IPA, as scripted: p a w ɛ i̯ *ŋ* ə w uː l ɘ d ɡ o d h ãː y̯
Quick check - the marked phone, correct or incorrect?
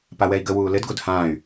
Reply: incorrect